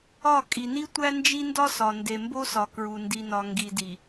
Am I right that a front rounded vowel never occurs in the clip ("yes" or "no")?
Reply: yes